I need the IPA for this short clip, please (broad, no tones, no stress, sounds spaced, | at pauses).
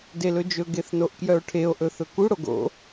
d e l ɵ d͡ʒ ɵ ɡ e θ n o ʔ k j œ o̯ ʈʰ e o̯ ʔ ɵ θ ɵ k u ɽ o ɡ o̰